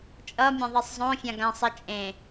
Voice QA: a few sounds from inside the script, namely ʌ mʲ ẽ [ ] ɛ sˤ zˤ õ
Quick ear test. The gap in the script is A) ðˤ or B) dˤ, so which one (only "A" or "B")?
A